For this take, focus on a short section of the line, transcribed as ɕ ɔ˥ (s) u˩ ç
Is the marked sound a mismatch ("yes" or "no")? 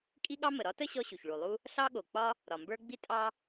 yes